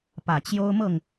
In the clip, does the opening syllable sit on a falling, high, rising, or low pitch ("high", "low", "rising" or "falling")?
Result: low